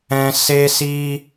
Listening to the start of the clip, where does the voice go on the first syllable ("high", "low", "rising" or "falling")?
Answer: high